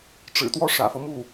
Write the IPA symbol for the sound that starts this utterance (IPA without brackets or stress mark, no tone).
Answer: ʈ͡ʂ